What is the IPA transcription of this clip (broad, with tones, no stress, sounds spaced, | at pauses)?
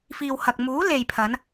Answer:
f iː˨ w h ɐ˨ k̚ m uː˨˥ l e˨ j pʰ ɐ˨˧ n